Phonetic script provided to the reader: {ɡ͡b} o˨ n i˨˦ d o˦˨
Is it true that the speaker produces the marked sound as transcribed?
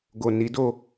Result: no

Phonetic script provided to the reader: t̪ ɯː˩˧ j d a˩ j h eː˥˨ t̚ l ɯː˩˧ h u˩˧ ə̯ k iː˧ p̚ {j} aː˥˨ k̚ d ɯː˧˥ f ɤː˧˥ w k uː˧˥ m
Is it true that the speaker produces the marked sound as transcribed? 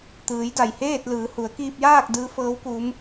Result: yes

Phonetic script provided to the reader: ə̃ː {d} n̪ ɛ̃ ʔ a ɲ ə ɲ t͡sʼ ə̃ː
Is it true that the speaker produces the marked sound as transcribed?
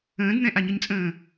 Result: yes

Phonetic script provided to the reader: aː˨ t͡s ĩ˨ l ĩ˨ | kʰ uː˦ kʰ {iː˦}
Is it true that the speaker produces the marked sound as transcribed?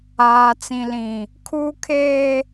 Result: no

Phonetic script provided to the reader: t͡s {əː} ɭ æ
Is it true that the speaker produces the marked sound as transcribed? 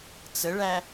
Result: no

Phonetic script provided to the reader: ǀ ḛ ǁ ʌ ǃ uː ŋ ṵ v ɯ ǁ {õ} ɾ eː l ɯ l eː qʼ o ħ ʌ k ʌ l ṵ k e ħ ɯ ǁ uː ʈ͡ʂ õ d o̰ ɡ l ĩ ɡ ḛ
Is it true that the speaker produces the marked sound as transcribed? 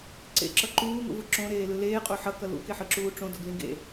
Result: yes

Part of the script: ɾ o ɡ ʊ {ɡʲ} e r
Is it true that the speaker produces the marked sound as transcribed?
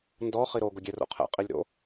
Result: yes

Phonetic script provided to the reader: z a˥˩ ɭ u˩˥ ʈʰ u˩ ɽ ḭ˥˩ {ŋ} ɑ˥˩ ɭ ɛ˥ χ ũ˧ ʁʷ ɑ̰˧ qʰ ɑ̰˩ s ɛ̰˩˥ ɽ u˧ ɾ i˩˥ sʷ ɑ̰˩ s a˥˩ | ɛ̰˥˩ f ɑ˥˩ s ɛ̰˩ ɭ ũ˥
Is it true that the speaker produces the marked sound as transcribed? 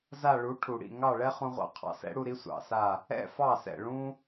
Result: yes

